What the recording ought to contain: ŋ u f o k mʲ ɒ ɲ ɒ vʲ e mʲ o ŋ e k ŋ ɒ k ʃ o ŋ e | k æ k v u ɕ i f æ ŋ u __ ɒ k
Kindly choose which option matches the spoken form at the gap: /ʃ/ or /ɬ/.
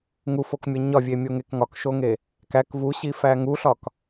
ɬ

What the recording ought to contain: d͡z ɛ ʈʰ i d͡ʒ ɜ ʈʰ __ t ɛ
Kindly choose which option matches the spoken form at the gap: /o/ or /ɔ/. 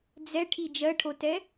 o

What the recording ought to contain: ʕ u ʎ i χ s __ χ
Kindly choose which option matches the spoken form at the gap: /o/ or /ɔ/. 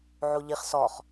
ɔ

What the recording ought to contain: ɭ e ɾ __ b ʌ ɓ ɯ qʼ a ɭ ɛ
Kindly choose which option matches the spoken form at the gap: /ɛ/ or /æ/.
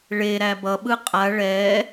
æ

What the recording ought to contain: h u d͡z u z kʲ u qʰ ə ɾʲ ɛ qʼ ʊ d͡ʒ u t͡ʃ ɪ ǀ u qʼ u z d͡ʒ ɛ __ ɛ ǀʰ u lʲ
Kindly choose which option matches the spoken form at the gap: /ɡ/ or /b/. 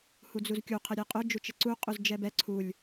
b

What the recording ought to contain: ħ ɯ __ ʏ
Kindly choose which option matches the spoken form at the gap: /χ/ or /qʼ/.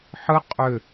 qʼ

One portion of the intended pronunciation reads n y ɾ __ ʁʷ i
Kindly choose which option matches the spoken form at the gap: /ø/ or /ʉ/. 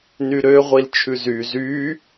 ø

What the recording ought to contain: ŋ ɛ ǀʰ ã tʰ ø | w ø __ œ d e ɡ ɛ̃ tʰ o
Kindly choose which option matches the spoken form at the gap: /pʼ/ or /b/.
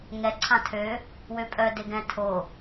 pʼ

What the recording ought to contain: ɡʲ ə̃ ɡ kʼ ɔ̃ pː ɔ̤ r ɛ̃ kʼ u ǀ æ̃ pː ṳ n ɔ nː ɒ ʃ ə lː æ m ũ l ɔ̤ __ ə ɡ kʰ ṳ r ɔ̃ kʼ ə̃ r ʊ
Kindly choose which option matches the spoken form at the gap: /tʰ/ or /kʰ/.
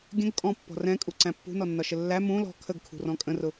kʰ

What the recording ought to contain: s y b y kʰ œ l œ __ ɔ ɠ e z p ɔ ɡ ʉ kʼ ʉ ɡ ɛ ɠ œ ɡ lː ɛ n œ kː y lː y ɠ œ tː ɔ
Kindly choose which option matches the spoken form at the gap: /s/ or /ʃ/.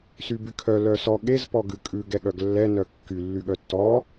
s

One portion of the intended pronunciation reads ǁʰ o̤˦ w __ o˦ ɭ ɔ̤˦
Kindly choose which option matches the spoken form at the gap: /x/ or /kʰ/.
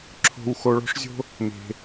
x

